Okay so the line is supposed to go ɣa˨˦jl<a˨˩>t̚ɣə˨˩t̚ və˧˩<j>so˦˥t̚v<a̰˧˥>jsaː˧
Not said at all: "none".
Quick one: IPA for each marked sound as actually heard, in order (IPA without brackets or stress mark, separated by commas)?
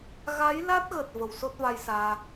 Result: a˦˥, w, a˧